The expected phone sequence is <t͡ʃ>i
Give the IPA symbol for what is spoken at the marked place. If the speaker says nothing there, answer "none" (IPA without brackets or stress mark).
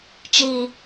t͡ʃ